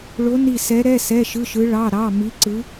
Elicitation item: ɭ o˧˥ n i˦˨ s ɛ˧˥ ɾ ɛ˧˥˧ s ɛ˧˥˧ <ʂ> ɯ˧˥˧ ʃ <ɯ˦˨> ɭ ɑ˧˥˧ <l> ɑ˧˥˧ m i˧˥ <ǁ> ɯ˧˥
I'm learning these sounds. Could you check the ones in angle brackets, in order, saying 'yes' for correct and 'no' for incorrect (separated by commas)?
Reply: no, no, no, no